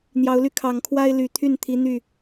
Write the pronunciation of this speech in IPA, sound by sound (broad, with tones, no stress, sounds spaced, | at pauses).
n̪ j ɑ˨˦ ʊ̯ l y˧ kʰ ɑ˨˩ ŋ kʰ w a˦ ɪ̯ l y˨˩ t̪ʰ y˥˨ n t̪ʰ i˨˦ n̪ y˥˨